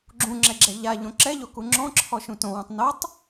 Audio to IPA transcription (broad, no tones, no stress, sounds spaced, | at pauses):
ɡ͡ǁ ũ ŋ͡ǁ ɛ ɡ͡ǁ ɛ ʎ a ʎ õ ǁ ɛ ʎ o k u ŋ͡ǁ ɔ̃ ǁʰ ɔ ʃ ũ t õ w ũ tˤ n o tˤ